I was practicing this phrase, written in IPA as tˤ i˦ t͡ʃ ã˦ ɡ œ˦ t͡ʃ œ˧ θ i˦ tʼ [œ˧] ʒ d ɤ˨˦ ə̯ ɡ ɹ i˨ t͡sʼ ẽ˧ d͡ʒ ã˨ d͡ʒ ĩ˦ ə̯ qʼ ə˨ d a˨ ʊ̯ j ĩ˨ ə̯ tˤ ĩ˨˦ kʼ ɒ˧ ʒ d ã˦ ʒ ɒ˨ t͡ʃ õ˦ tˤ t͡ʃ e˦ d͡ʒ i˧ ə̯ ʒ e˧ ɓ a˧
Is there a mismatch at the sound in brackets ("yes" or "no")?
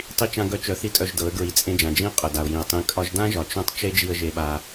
no